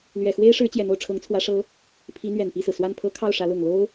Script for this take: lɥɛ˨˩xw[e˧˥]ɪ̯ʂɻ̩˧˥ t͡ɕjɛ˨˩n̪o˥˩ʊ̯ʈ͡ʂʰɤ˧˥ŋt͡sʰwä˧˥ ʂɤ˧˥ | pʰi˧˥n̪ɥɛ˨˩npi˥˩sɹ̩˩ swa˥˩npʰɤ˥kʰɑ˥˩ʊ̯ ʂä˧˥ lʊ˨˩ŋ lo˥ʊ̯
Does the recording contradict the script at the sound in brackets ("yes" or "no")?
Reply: yes